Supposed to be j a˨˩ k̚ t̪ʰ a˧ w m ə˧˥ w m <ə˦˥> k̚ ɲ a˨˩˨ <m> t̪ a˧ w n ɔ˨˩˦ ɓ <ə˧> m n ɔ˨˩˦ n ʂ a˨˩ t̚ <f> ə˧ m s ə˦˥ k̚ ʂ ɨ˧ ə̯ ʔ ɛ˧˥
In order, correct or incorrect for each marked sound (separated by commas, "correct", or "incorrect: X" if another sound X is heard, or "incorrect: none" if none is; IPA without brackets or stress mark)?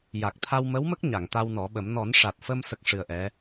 correct, incorrect: ŋ, incorrect: ə˨˩˦, correct